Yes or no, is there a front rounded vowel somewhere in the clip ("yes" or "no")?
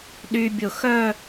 yes